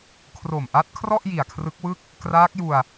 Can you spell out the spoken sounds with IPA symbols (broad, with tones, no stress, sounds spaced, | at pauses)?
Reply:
kʰ r o˨˩ m ʔ a˦˥ t̚ kʰ r ɔ˥˩ ʔ j i˨˩ a̯ kʰ r ɯ˦˥ k̚ w ɯ˥˩ k̚ | k r aː˦˥ k̚ j u˧ a̯